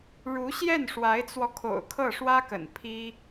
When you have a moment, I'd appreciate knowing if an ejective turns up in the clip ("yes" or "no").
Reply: no